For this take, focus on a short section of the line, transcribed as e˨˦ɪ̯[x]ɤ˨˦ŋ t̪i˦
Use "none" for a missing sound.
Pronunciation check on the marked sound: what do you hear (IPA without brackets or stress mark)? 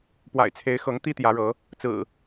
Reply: x